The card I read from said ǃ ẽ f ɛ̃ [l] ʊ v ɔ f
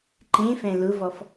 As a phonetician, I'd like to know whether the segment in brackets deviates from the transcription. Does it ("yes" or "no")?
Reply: no